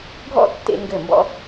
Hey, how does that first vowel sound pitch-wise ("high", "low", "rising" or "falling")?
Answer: falling